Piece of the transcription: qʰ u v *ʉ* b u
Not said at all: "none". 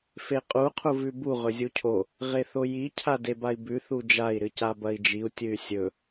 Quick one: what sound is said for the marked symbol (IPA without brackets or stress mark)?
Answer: ʉ